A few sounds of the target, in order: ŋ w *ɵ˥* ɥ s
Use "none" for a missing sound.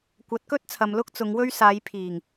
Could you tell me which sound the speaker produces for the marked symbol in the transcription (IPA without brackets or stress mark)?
ɵ˥